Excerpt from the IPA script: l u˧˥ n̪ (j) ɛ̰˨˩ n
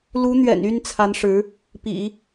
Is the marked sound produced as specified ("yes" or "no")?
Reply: no